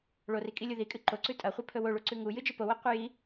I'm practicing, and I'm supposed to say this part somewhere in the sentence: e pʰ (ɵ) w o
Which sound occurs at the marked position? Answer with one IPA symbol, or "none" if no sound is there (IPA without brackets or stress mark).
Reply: ɵ